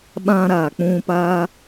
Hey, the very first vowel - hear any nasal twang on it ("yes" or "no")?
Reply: yes